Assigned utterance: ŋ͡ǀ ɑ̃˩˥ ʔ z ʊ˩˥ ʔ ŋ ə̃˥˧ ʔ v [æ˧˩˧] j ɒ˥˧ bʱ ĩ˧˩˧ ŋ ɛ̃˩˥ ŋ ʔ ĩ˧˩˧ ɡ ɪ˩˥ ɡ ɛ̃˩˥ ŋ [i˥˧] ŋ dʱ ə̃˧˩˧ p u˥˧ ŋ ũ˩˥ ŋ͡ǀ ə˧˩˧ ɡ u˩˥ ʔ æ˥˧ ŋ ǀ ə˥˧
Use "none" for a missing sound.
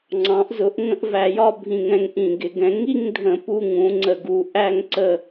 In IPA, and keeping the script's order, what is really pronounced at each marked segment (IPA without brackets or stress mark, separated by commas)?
æ˧˩˧, i˥˧